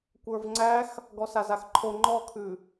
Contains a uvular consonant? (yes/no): no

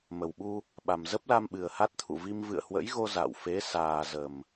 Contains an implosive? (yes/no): yes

